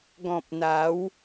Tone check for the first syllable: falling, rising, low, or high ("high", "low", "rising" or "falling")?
low